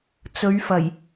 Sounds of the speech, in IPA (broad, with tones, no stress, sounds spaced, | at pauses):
t͡s ɵ˨˧ ɥ f ɐ˨˩ j